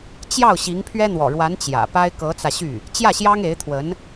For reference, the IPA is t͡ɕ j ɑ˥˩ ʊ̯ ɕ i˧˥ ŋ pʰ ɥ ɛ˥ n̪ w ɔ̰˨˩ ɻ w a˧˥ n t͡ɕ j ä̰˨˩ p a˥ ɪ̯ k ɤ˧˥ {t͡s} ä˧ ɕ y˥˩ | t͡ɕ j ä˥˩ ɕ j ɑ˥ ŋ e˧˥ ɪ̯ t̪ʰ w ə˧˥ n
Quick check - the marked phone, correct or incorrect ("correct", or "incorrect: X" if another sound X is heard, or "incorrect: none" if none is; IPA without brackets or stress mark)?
correct